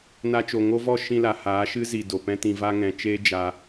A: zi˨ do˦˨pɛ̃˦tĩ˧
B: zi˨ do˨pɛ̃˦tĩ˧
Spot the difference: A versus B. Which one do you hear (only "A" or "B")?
B